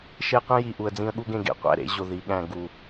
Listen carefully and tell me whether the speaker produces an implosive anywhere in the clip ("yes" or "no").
yes